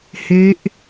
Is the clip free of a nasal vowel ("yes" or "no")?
yes